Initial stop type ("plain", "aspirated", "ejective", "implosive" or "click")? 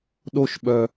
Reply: implosive